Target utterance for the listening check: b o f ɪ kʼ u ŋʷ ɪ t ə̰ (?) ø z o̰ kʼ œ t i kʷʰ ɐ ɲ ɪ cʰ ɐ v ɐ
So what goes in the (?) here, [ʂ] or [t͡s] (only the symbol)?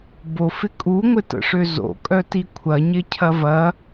ʂ